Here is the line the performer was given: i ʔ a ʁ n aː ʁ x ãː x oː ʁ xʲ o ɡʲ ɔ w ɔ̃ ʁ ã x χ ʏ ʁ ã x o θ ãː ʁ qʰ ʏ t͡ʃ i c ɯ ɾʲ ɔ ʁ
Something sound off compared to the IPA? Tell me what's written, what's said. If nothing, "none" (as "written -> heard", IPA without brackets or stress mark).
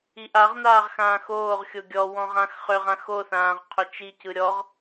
none